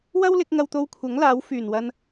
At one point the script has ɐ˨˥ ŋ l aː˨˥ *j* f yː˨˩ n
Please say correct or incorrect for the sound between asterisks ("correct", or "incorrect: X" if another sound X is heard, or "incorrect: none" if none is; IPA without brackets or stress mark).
incorrect: w